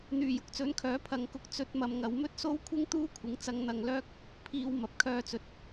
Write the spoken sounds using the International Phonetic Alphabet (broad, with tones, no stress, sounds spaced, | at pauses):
n̪ yː˨˩ j ʊ˨ k̚ t͡s ɵ˨˥ n kʰ œː˨˥ pʰ ɐ˨ ŋ k ʊ˧ k̚ t͡s ɵ˧ t̚ m ɐ˨ m ŋ ɐ˨˧ w m ɵ˥ t̚ s o˥ w kʷʰ ɪ˥ ŋ t̪ uː˥ kʷʰ ɪ˨˥ ŋ t͡s ɐ˧ ŋ n̪ ɐ˧ ŋ l œː˥ k̚ | pʰ iː˧ w m ɐ˨ p̚ kʰ œː˧ t͡s ɵ˨ t̚